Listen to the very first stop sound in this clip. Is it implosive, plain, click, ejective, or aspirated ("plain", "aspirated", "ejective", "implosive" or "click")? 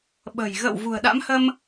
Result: implosive